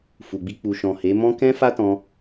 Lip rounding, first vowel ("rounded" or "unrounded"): rounded